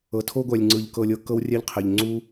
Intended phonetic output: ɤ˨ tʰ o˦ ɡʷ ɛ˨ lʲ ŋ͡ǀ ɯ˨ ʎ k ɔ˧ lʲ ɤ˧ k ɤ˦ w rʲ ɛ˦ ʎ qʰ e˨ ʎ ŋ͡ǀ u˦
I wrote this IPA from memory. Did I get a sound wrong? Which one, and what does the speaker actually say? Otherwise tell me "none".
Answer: ɔ˧ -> ɤ˧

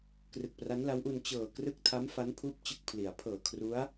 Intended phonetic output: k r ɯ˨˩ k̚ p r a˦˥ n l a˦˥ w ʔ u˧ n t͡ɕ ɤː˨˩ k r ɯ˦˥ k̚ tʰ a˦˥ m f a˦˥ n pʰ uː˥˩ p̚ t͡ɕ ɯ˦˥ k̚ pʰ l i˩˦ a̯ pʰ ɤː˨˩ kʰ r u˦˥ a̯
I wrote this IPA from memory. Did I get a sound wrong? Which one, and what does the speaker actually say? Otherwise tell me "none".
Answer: none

